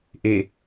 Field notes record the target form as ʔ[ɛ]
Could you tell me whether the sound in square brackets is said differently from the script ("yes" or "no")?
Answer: yes